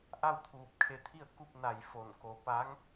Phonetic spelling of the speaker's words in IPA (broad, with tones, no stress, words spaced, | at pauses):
ʔa˥˨wt̪ʰuː˧˩p̚kʰe˧t̪ʰi˥˨ə̯ ku˥˨p̚na˧˩j fo˧˩nko˧ pa˧˥ŋ